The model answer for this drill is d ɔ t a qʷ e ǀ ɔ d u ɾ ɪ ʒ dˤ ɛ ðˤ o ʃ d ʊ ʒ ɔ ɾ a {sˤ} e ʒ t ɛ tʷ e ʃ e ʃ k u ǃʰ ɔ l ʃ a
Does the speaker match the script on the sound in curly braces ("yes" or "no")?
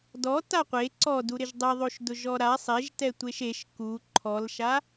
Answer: yes